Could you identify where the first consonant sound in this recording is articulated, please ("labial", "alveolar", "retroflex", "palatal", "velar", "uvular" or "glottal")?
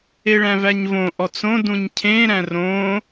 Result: retroflex